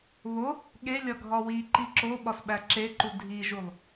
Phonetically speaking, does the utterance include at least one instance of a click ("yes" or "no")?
yes